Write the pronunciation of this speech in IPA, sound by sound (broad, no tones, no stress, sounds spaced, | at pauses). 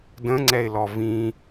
d ə̃ ŋ͡ǀ ɛ ɪ̯ l ɔ v ĩ